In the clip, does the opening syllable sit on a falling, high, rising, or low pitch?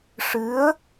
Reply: rising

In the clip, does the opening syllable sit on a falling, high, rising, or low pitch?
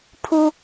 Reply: high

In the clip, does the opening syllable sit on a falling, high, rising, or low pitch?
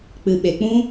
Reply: low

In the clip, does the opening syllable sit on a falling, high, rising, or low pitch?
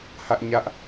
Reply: high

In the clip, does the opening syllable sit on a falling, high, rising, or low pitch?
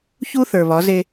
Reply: high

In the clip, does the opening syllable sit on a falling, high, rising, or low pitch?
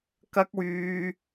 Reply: high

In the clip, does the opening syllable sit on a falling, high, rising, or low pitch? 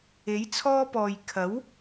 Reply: rising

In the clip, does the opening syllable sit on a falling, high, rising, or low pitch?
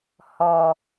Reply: low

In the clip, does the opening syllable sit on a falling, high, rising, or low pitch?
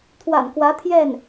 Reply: low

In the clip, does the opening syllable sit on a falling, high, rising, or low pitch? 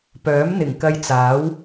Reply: rising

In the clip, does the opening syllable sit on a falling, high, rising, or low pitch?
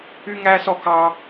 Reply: high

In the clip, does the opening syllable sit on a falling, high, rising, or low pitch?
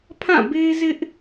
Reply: falling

